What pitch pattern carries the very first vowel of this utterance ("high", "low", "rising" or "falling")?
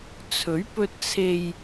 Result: rising